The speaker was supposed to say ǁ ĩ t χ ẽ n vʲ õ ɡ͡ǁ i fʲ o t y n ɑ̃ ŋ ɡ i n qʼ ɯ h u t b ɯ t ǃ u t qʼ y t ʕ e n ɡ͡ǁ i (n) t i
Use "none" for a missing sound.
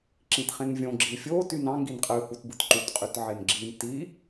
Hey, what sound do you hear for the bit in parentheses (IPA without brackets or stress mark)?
n